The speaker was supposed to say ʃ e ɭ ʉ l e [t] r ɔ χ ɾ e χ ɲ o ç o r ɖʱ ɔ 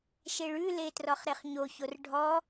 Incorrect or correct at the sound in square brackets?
correct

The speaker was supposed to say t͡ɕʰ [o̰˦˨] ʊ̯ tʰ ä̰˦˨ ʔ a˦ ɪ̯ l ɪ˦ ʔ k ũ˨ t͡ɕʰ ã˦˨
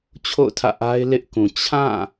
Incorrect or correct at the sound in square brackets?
correct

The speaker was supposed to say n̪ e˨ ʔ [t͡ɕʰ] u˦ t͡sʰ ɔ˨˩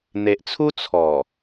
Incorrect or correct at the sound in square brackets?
incorrect: t͡sʰ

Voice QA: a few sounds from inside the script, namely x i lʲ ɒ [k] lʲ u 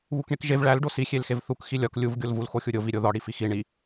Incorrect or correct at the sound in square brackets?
correct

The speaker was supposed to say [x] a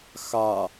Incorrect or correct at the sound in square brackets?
correct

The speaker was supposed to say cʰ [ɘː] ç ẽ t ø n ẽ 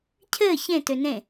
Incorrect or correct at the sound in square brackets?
correct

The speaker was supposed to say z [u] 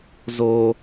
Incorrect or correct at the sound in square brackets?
incorrect: o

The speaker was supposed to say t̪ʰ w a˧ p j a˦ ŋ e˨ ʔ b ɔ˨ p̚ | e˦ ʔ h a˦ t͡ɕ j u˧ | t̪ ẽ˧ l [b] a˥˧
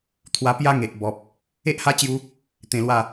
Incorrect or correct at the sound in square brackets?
incorrect: w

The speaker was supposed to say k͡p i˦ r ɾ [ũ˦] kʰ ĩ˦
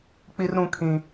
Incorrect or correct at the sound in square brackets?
correct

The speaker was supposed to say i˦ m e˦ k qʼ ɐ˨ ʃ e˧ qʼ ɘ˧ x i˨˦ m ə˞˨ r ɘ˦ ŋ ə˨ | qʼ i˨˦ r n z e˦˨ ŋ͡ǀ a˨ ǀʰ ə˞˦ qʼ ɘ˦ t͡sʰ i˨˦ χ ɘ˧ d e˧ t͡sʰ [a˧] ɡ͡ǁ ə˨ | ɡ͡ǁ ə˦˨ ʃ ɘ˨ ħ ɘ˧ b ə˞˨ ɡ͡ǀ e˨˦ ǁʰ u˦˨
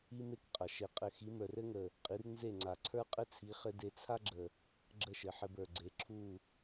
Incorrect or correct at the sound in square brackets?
incorrect: a˦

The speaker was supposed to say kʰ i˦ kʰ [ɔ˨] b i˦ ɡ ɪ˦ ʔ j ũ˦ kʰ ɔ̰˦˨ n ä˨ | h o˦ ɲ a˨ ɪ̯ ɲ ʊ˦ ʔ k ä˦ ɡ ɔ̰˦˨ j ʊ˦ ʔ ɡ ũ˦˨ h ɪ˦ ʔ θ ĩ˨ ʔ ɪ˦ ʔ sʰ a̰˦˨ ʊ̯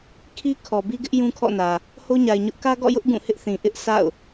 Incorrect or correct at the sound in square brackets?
correct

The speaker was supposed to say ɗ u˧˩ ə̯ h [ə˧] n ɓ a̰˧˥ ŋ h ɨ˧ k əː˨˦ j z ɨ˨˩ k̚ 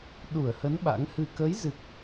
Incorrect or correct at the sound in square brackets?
incorrect: ə˨˦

